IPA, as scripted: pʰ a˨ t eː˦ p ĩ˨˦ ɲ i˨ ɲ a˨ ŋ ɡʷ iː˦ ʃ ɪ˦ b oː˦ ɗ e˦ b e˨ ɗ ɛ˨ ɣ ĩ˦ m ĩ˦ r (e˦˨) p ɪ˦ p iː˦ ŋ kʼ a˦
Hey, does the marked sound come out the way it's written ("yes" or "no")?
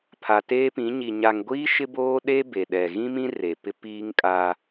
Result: no